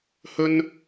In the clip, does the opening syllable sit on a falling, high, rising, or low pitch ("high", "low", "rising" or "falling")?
high